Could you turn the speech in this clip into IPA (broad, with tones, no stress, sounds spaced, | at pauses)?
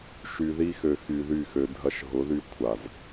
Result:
ʃ y˧ ð i˦ x ø˧ x y˧ ð y˦˨ x ø˧ dʱ ɐ˧ ʃ ɦ ʊ˨˦ ð y˧ kʷʰ a˨ z